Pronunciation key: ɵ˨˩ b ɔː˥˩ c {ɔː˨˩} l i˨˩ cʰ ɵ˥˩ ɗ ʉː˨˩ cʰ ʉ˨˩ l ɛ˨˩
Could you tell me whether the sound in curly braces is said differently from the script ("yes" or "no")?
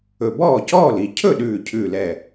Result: yes